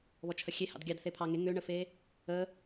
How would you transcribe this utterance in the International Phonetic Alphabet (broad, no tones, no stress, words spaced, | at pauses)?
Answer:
βɔt͡ʃʰəxʲehɑ̰d ɡʲɑd θepʰɑŋe ŋøɳəfe | ə